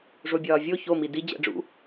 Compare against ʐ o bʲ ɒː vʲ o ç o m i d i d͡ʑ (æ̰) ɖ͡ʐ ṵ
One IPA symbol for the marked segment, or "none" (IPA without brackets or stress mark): æ̰